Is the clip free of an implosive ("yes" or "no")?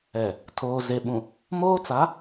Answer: no